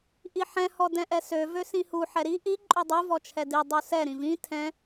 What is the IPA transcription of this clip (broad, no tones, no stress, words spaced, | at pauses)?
ʔiħɛ̃ hɔdɛ̃ʔɛsø vøsĩhu ħɛɾi ʔi ǃʼødˤu vɔt͡ʃʰɛdi dˤusɛ ɾĩvĩ tʰɛ̃